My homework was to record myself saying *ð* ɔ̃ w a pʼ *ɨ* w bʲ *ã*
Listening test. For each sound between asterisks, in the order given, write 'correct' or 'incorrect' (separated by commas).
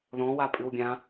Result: correct, correct, correct